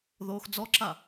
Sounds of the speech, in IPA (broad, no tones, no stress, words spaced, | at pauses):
ðoːxd͡zɔǁa